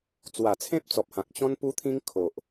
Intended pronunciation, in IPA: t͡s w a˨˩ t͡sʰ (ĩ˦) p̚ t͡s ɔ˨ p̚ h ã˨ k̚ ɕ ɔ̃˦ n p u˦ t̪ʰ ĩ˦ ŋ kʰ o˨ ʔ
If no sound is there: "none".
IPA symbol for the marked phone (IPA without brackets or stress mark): ẽ˦